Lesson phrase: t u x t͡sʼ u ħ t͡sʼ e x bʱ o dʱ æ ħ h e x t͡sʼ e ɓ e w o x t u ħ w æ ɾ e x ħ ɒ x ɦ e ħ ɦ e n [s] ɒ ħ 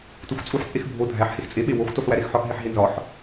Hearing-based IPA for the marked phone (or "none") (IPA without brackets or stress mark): z